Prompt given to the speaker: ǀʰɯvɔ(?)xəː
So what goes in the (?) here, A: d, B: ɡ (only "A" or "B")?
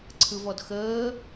A